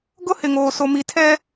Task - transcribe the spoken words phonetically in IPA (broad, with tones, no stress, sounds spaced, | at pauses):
ɡ ʊ˦ h ɪ˨ ŋ oː˨ s o˨ m i˨ tʰ ɛ˦